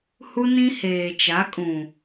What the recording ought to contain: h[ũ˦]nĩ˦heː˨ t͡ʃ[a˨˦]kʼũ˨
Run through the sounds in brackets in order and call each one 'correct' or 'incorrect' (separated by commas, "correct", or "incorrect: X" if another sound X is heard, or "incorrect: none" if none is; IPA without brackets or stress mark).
incorrect: u˦, correct